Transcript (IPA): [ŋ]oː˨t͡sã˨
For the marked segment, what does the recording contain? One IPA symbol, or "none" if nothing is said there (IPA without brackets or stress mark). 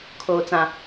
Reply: kʰ